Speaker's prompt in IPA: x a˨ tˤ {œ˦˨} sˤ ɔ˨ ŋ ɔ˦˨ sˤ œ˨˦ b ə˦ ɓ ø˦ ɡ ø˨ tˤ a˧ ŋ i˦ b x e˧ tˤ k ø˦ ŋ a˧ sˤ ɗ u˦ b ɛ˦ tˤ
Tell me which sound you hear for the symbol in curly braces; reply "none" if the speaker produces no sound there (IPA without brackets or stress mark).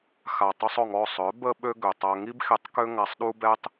œ˧